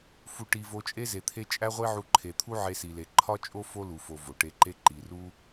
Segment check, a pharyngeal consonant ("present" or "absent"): present